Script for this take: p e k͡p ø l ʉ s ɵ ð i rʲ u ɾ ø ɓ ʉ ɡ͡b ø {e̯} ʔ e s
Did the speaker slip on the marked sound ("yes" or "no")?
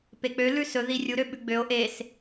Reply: yes